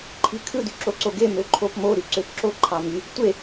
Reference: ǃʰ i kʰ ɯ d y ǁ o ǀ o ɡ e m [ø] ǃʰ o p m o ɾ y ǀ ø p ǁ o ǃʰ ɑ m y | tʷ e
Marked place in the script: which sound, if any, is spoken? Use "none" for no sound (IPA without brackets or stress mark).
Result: ø